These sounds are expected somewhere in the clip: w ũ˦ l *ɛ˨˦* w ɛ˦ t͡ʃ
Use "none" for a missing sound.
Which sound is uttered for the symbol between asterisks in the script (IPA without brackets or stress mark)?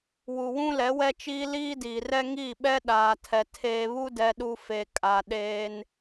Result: ɛ˨˦